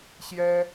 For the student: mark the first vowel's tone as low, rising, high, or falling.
high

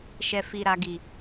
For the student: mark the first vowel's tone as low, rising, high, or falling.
low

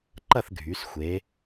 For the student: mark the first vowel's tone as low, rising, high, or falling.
falling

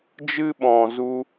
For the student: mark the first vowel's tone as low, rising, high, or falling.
high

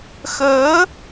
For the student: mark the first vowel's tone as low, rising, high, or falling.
rising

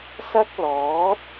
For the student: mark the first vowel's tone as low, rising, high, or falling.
high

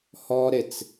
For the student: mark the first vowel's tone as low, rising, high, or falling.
high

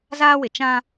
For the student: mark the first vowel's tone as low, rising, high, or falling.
high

